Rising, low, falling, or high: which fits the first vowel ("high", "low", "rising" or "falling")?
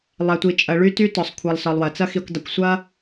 low